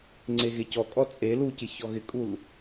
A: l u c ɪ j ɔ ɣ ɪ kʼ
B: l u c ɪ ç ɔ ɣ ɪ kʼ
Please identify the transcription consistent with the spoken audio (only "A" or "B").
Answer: B